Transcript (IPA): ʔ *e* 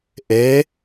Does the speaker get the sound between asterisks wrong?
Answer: no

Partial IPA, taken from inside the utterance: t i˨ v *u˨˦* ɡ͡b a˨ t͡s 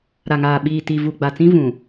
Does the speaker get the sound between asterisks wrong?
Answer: yes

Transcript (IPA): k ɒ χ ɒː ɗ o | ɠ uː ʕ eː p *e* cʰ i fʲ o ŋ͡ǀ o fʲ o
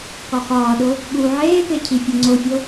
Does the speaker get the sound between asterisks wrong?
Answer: no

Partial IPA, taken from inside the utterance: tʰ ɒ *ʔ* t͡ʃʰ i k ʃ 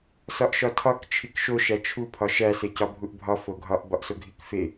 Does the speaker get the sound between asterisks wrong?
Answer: yes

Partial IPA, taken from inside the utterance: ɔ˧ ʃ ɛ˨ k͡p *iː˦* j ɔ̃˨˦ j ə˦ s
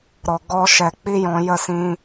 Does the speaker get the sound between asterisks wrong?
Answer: yes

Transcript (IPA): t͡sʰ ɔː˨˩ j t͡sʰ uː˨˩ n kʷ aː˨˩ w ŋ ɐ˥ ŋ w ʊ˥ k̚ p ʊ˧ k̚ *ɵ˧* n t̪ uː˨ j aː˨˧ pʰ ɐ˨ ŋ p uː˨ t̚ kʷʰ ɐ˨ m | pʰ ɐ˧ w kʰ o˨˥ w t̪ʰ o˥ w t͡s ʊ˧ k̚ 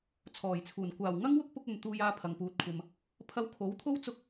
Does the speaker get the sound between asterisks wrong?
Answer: yes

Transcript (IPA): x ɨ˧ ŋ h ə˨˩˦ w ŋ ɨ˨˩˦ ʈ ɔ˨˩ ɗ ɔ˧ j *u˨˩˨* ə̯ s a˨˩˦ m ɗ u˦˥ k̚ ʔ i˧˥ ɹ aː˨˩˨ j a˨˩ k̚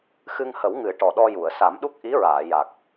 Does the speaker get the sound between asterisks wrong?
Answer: no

